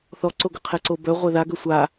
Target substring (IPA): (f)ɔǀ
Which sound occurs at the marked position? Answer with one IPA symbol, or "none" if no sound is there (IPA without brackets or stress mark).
θ